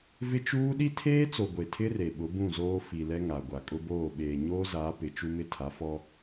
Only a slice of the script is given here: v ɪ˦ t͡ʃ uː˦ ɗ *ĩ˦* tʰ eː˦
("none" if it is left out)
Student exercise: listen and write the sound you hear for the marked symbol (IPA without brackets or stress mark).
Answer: i˦